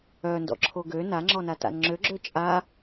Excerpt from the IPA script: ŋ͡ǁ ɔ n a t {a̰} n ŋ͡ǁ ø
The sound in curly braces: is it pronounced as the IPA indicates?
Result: yes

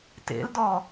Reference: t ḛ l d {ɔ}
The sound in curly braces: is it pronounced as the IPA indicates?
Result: yes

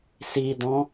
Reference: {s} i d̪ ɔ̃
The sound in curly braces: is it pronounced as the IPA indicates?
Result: yes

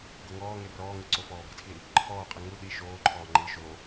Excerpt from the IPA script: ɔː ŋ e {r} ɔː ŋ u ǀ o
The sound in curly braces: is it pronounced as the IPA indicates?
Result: yes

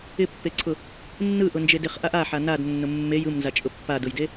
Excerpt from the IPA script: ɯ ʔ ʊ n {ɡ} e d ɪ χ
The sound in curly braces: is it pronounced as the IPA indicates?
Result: no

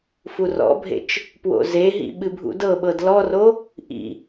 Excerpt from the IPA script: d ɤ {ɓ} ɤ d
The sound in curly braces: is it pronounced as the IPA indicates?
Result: yes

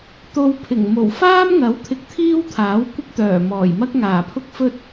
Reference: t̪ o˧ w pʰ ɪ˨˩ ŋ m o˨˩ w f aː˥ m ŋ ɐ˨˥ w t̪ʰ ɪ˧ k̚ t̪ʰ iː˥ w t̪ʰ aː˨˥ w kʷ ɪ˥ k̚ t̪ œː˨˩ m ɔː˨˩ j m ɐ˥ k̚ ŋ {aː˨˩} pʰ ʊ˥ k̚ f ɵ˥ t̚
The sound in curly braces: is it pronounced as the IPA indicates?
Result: yes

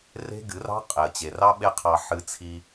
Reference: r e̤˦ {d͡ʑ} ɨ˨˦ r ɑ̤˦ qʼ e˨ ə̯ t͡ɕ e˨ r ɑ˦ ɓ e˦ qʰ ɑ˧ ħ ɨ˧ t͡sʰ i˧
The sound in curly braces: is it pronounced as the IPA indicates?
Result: no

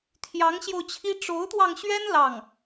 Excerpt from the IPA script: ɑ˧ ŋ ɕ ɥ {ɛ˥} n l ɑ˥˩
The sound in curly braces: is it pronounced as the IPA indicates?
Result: yes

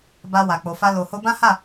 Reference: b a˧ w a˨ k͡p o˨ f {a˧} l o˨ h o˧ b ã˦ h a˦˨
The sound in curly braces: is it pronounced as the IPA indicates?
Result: yes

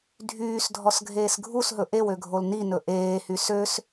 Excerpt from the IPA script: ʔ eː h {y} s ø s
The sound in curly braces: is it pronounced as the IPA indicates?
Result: yes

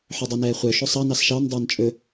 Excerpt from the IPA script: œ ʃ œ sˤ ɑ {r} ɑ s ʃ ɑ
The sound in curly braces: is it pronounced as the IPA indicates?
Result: no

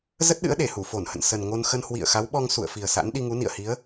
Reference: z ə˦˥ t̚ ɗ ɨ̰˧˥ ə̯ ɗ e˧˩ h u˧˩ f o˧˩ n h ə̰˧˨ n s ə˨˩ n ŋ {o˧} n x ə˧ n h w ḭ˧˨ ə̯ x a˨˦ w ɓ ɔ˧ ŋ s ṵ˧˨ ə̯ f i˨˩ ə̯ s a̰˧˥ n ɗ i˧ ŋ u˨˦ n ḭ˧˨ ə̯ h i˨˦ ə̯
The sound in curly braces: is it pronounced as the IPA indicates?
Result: yes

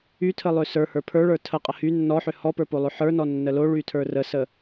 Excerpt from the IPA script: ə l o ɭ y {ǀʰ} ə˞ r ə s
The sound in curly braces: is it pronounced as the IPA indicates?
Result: no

